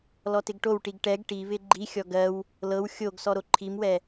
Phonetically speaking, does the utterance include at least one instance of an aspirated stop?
yes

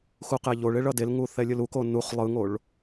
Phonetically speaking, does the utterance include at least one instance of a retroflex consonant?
yes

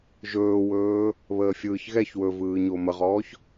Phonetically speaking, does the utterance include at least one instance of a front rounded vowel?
no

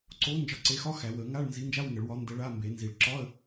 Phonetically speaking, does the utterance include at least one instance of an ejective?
no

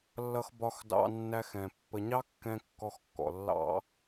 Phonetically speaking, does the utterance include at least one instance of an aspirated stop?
no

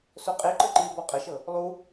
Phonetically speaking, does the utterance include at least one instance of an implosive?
no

